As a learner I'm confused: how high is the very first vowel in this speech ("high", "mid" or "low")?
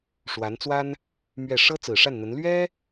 low